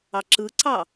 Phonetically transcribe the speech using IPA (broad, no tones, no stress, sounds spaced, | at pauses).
ɑ ǁ ɯ ǀ ɑ